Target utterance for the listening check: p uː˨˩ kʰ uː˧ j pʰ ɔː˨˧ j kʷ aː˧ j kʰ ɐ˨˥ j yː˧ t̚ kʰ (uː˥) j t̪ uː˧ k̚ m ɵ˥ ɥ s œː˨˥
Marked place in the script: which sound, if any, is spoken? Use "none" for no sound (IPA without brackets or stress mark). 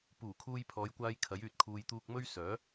uː˨